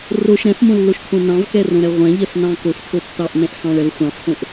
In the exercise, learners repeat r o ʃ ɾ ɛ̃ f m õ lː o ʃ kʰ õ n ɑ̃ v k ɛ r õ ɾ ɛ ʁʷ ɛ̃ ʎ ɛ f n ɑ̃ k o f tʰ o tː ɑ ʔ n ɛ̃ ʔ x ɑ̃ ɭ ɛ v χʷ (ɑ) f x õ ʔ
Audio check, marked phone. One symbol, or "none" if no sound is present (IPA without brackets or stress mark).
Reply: ɑ̃